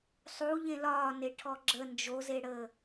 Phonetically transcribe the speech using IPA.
sˤu ʎẽlɒːne ʈʰɔɡ͡ǁə nd͡ʒozeɽəː

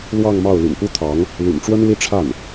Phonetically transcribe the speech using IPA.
lwɑ˥˧ŋmɑ˥˩ʊ̯ ly̰˨˩npu˥t̪ʰɑ˧˥ŋ | ly̰˨˩nʈ͡ʂwə˥n li˥ ʈ͡ʂʰa˥˩n

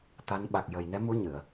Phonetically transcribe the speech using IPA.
t̪a˧˥n ɓa˨˩k̚jə˨˩j nɛ˧˥mu˧˥ ɲɨ˨˩˨ə̯

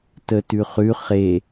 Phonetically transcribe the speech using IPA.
tətʉχʉ χe

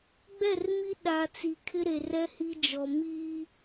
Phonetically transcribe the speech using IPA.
ɡ͡bɛ˦˨rmi˦ ɗa˨ t͡si˨kʰɪ˦ɾe˨ rɛ˦hi˦d͡ʒɔ˨ miː˦

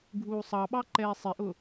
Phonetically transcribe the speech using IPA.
ɡʱuːsˤɑɓɑ ǃɛːsˤɪʔʊ

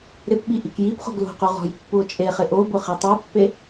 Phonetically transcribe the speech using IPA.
ɾɪpɓi ʔikjipχo̤ɡ lo̤qu ʁɔ̤jpːuo̯t͡ʃʼeχɪ ʔobʊ χitˤopːe

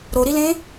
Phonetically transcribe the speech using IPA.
ɾoɾilẽ

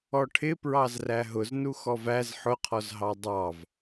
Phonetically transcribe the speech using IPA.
ɔʈʰɪ pɹɑzræɦʊz nuxɔvæz ħʊqʰɔzɦɑ dˤɑv

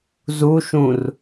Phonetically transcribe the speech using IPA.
zuʃũr

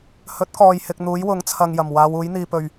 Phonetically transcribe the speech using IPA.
hɵ˨˥t̚kɔː˨jhɪ˨k̚ n̪uː˨˥jwʊ˨˥ŋt͡sʰɐ˨ŋjɐ˨˩m waː˨˧wuː˨˥jn̪iː˨ pɵ˨˩ɥ

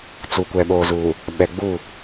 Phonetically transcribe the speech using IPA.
t͡su˨kʷɛ˨ɓoː˨zuː˨ | ɓɛ˨ ɡ͡bu˦˨

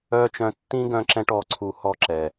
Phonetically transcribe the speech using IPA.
œː˦t͡ʃœ̃˧ tːĩ˦ɡœ̃˧ǁɛ̃˧ʈ ɔ˨˦ǀʰu˧hɔ˦ǁɛ˨

